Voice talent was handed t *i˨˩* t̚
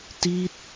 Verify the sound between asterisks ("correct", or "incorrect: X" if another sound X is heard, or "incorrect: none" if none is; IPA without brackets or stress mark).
incorrect: i˦˥